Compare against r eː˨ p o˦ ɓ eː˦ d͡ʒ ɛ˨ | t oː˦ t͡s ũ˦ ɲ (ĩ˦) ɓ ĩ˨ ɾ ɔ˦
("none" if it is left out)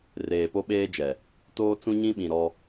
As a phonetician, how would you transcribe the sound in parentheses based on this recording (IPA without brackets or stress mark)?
ĩ˦